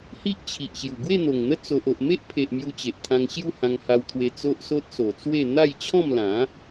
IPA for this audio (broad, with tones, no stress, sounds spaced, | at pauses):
h i˦ ʔ t͡ɕʰ i˨ ʔ ɕ j u˨˩ ɡ w e˥˧ n̪ o˨˩ ŋ n̪ ə˦ t͡s o˨ ʔ o˨ ʔ m e˦ ʔ pʰ e˨ ʔ m j u˧ t͡ɕ e˨ ʔ t̪ʰ ã˧ ŋ ɕ j u˥˧ h ã˧ ŋ h a˧ w t̪ʰ w e˧ t͡s o˦ ʔ s o˦ t̚ s o˨˩ t͡s w e˥˧ n̪ a˥˧ j t͡ɕʰ ɔ̃˥˧ m l ã˨˦